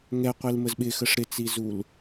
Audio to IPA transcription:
ŋɛqʷilməz ɓɪxəʂ ɾɪt͡sizul

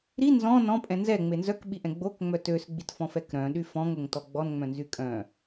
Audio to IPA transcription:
ɾi nzɔ̃ nɔ̃pʼɛ̃ nzɛŋ͡me nzœkɓiʔɛ̃ ɡ͡bokŋ͡mœ tøsɡ͡bitfɔ̃fɛk ɾœ̃ɗy fɔ̃ŋoŋtɔ ɡ͡bɔnŋ͡mœ̃nzy kʼœ̃

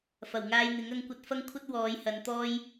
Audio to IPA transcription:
fɐ˨˩wŋaː˧jn̪ɪ˨˥ŋ ɐ˨˧ŋkʷɐ˧t̚fɐ˥ŋkʷʰɐ˥t̚ wɔː˨˧jhɐ˨˧nt̪ɔː˥j

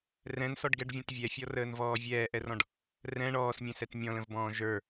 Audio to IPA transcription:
rɛ̃nsɔɖɡɛɖvʲɔ̃t vʲɛfʲɔrəːnvɔː vʲɛːʔɛrɔ̃ɖ | rɛ̃ ɳɔːsmʲɛ̃sɛt mʲɔ̃lə̃vbɔ̃ː ʒə˞

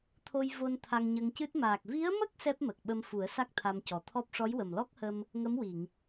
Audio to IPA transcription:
t̪ʰo˧j vo˧n t̪ʰa˧ŋɲə˧ŋcɨ˦˥t̚ maː˨˩k̚ vi˧˥ə̯mə˦˥k̚ sɛ˦˥p̚mə˨˩k̚ ɓə˧mfu˨˩˦ə̯ sa˦˥k̚t̪ʰa˧mcɔ˨˩t̪ʰɔ˦˥p̚ ʂɔ˧˥jwə˨˩mlɔ˦˥k̚hə˧m | ŋə˧˥mwi˨˩˨ŋ

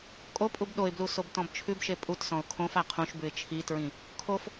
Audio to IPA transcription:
kʼopʼub ɗoɪ̯blu sobtɔ̃bt͡ʃʰʉbʃe pʼutsɔ̃ʊ̯ kʰõfa qʰũʃbʉɪ̯ t͡ʃʰitɹĩ | kʰof

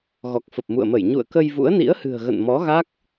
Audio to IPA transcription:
ɣɔ˨˩k̚fə˨˩p̚mṵ˧˨ə̯mə˧˩j ɲṵ˧˨ə̯kə˧j vṵ˧˥ə̯nḭ˧˥ə̯hɨ̤˨˩ə̯ɣə̰˧˨n mɔ˨˦ɣa˦˥k̚

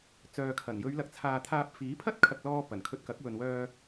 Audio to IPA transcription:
t͡sœː˨kʰɐ˨˩n jɵ˨˧ɥlɐ˨k̚t͡sʰaː˨t̪ʰaː˧p̚ fiː˨˥pʰɐ˥t̚kʰɐ˨k̚lɔː˧ pɐ˨˩nkʰɵ˧t̚kɐ˨˥k̚wɵ˨n wœː˧

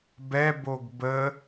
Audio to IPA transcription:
bɛboɡ bə

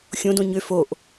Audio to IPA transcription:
xʲõdõ ɲø foʔ

